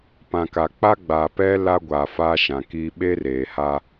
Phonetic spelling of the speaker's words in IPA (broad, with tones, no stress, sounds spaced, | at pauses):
p ã˨ k a˨ k͡p a˦ ɡ͡b aː˨ p ɛ˦ l a˦ ɡʷ aː˨ f aː˦ ʃ ã˨ k iː˦ ɓ e˦ r eː˨ h a˦